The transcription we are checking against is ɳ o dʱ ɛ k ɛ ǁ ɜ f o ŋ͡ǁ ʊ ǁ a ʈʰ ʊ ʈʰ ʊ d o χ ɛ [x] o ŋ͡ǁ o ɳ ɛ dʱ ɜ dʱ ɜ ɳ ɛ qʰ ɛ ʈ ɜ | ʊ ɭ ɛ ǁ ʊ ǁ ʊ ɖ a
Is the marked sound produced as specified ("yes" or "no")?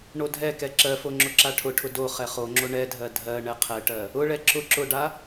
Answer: no